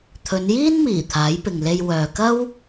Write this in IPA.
t̪ʰ ɵ˨˧ n j iː˥ n m iː˨˩ t̪ʰ aː˨˥ j p ɪ˨ ŋ l e˧ j w œː˨ k ɐ˥ w

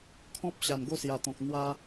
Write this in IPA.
kʰ ɔ̃˦ p̚ ɕ a˨˩ n ɡ o˥˧ s j a˨˩ t̪ ɔ̃˨ k̚ n̪ w a˧

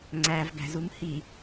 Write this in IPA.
ŋ͡ǀ æ v ɡ æ̤ z u m h i

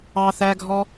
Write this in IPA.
ɑ θ æ ɡʱ ɔ

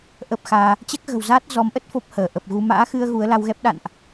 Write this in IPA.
ʔ ə˦˥ p̚ x aː˧ | t͡ɕ ɛ˦˥ k̚ ɣ ə̤˨˩ w z aː˦˥ t̚ z ɔ˨˦ m ʔ ə˦˥ t̚ f o˦˥ p̚ h əː˧˩ ʔ ə˨˩ p̚ ɣ u˧ m a̰ː˧˥ x ɨ˧ ə̯ ɣ u˨˦ ə̯ l a˧ w ɣ ɛ˦˥ p̚ ɗ a̰˧˨ n ʔ

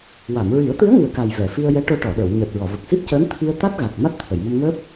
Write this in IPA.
w a˨˩˨ m ɹ i˨˩˦ ə̯ t̪ ɨ˧˥ ə̯ ŋ ɨ˨˩ ə̯ k a˨˩ j v ɛ˨˩˨ f i˧ ə̯ j ɛ˧˥ ʈ o˧ ʈ ɔ˨˩˨ ɗ ə˨˩˨ w ɲ əː˨˩ t̚ ɹ ɔ˨˩˨ v ə˨˩ k̚ s i˦˥ p̚ c əː˧˥ n t̪ʰ i˧ ə̯ t̪ a˦˥ t̚ ɣ a˨˩ k̚ m a˦˥ t̚ t̪ʰ ə˨˩˨ j m ə˧ m ŋ əː˦˥ p̚

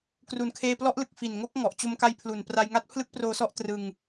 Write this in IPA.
k r u˨˩ n kʰ eː˧ p l ɔ˦˥ ʔ l ɯ˨˩ k̚ f i˨˩ n ŋ o˦˥ k̚ ŋ ɔ˨˩ ʔ t͡ɕ o˧ m k a˧ j pʰ l u˨˩ n p r a˧ j ŋ a˦˥ t̚ pʰ l ɯ˦˥ k̚ p r oː˧ s ɔ˦˥ ʔ t r ɯ˧ ŋ

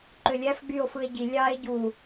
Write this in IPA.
ǃ ø lʲ æ f ɡ͡b y o̯ f ɯ e̯ ɟ i lʲ ɑ e̯ ɟ u

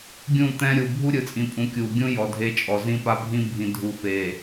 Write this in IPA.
ɡʲ ũ˦˨ t̪ ɛ̃˦ ɾʲ uː˨ bʱ u˦ ɾʲ ɯ˨ t͡sʼ ĩ˨ pʼ ũ˨˦ kʲ uː˨ ɡʲ ũ˦ j ɔ˨ dʱ e˦ t͡ʃʼ ɔ˨ z ĩ˦ p a˦ bʱ ĩ˦ bʱ ĩ˨ dʱ u˨ f e˨

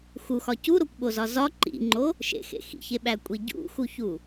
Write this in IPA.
x u x ɒ c u ɾ o kʷ ɓ o z ɒ z ɒ ǃ ḭ ŋ͡ǃ o | ʃ ḛ x ḛ x ḭ ç e ɓ æ kʷʼ i ɟ ṵ x u ç u

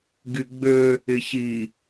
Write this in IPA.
ɡ y ɡ͡b ø | ɪ ç i

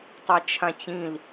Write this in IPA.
tˤ ɛ t͡ʃʰ ã t͡ɕ ĩ l

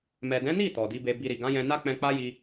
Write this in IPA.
m ɛ˨ d ɛ̃˨˦ n i˦˨ t ɔ˨ d i˨˦ b e˧ b i˧ ɾ i˨ ɡ ã˨˦ j ɛ̃˧ n a˦ k͡p ɛ̃˧ k͡p a˦ j i˧

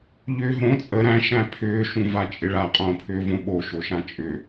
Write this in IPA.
ʎ ʏː ɦ õ t͡sʼ ə ɾ æ̃ ʃ æ̃ pʰ ʏː ʃ ũ v a t͡ʃʼ ɪ ɭ a qʼ õː pʰ ʏː v õ ɓ o ʃ o ʃ ã t͡ʃʼ ʏ

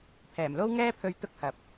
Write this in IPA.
pʰ ɛː˨˩ m l o˥ w ŋ ɛː˥ pʰ ɵ˧ ɥ t̪ ʊ˥ k̚ h ɐ˨ p̚

